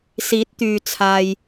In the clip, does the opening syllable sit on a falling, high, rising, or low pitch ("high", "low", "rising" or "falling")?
rising